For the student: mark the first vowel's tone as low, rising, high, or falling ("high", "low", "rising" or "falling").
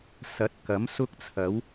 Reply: rising